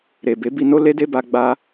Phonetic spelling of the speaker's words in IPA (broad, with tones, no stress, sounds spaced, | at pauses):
ɾ e˨ b e˨˦ b i˧ n o˦ l e˦ d e˦ b a˧ ɡ͡b a˦